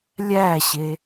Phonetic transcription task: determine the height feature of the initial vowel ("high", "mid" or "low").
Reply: low